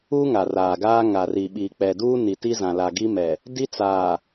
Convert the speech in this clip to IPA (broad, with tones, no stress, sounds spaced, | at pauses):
uː˦ ŋ a˨ r aː˨ ɡ aː˦ ŋ a˨ r i˨ ɓ i˨ k͡p ɛ˨ d uː˦ n i˨ t i˦ z ã˨ l a˨ ɡ i˦ m ɛ˨ | d i˦ t͡s aː˨